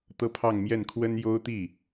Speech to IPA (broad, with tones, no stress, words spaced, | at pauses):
t̪ɤ˥pʰɑ˥˧ŋmjɛ˥˩n kʰwə˥n jo˥ʊ̯t̪i˥˩